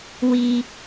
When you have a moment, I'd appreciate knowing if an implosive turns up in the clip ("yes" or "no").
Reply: no